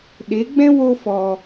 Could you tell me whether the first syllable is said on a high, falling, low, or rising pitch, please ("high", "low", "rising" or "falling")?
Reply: rising